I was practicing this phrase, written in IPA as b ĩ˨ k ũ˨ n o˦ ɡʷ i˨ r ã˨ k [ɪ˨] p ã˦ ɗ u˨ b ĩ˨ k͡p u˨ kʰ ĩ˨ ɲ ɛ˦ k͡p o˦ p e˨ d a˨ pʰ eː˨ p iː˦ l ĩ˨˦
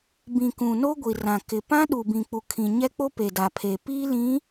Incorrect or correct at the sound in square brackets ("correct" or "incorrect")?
correct